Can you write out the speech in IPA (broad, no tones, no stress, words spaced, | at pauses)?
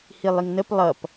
hilˠiŋnəp lˠʌp